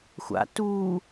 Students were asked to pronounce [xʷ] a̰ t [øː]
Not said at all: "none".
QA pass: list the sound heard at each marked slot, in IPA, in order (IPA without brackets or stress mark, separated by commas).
xʷ, uː